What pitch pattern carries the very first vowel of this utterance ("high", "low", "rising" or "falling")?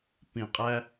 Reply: low